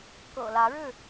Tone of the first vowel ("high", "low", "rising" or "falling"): low